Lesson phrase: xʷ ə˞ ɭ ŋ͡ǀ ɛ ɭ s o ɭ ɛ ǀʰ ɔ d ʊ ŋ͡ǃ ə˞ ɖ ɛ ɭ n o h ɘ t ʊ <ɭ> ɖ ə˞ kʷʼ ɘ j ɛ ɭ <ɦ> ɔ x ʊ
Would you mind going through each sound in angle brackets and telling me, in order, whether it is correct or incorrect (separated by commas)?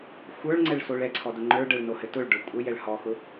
correct, incorrect